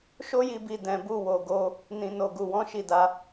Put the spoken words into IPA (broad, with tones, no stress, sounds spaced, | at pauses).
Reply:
ʃ o˦ j i˧ b i˨ d ɛ̃˨ b u˧ w o˨ ɡ o˧ | n ĩ˨ n o˨ ɡ u˨ w ɔ̃˨˦ ʃ i˦˨ d a˧